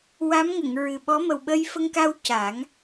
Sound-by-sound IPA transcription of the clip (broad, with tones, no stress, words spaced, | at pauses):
wa˧˥mŋə˨˩˨ŋ ɹɨ˨˩ɓɔ˧˥ mə˨˩wɓə˧jfə˧ŋka˧w ca˨˩˦ŋ